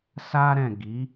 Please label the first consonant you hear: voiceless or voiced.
voiceless